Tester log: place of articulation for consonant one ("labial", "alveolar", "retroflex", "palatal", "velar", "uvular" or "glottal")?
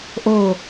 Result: glottal